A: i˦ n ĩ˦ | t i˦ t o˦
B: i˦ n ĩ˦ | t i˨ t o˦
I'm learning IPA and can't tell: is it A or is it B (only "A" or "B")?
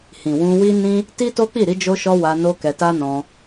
A